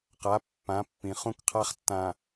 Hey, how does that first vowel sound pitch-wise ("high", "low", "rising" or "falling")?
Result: rising